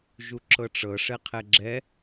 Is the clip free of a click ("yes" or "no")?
no